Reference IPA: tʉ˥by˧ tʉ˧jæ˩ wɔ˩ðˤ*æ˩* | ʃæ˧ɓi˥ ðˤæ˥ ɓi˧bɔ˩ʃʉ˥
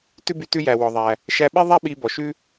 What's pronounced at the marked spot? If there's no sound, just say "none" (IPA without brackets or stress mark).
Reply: æ˩